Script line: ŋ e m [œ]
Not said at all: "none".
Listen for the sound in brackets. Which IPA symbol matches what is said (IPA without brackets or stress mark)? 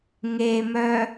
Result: œ